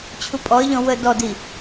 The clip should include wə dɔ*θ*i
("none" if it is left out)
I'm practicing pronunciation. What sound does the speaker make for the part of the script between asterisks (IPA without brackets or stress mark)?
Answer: d